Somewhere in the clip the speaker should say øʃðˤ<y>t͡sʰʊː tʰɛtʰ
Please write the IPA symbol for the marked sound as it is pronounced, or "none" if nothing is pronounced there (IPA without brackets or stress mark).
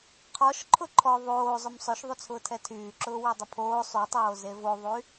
y